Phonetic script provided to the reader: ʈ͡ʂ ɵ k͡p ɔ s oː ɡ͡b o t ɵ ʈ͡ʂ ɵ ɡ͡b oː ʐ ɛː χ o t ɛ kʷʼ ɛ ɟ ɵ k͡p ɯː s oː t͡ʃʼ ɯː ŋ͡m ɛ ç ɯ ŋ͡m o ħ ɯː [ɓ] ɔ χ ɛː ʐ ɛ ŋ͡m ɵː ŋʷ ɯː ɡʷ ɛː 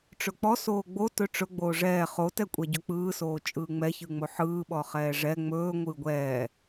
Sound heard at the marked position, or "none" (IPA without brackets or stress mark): ɓ